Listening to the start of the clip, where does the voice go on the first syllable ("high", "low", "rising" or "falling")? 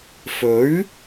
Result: rising